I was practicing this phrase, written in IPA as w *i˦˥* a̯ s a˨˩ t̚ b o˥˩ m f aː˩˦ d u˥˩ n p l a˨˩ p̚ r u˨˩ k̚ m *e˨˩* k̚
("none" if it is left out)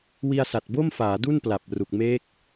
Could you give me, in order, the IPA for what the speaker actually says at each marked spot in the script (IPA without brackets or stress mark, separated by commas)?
i˧, e˦˥